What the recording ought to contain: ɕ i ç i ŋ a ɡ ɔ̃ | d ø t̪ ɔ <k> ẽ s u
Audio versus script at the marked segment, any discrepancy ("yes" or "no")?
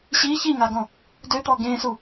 yes